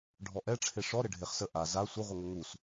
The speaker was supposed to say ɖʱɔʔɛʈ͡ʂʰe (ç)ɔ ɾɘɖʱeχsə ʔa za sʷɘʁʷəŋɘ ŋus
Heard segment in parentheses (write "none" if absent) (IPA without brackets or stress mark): ʂ